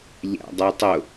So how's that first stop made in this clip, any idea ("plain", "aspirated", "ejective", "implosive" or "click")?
plain